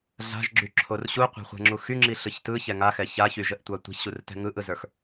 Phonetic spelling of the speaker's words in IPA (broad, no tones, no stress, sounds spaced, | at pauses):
ɮ a̤ ʒ ɡ͡ǁ y ǁʰ o r ɕ u qʷ a̤ χʷ ɛ̤ ŋ͡ǁ u x y ŋ͡ǁ i ɬ ɯ ç t ɯ ç ɛ ŋ a x ɛ ç a ç y ʒ ə ʔ tʷ a tʷ a̤ ç ɕ u r t ɛ̤ ŋ ɯ ʔ ɯ z ə˞ x